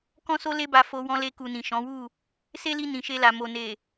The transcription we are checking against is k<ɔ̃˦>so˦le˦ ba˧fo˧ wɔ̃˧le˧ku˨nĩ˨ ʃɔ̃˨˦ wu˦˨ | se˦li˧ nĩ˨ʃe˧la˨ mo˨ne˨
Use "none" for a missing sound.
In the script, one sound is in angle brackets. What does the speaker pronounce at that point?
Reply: ɔ̃˦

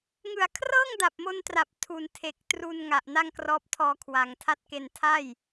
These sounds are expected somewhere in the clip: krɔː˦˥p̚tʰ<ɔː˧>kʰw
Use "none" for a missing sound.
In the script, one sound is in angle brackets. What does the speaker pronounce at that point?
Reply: ɔː˧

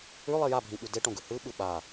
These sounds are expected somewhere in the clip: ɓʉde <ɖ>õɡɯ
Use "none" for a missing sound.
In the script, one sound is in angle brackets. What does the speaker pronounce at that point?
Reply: ʈ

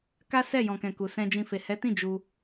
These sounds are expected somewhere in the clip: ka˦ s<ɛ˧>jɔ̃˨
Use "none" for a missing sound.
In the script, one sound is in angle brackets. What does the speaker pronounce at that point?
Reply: ɛ˦˨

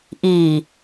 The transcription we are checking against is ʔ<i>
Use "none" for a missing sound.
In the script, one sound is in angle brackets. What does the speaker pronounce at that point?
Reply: iː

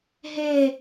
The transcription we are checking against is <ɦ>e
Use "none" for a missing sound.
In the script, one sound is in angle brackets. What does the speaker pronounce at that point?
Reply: ɦ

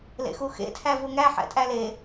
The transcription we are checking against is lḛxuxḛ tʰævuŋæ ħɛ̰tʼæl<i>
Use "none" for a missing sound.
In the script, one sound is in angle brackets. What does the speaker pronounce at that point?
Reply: e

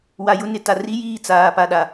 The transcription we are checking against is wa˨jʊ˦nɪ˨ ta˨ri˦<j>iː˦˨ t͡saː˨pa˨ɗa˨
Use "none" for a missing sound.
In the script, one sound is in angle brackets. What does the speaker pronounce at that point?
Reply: j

